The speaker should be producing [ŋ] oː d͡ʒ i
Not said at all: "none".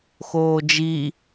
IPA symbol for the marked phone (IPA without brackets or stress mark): x